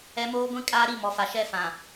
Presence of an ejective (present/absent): present